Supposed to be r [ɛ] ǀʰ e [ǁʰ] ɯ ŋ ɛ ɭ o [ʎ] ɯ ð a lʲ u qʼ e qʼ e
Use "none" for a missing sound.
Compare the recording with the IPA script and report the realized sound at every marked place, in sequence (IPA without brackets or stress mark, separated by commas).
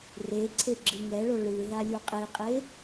e, ɡ͡ǁ, ɭ